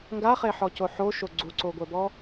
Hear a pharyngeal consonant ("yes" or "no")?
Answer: yes